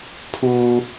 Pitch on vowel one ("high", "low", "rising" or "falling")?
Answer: high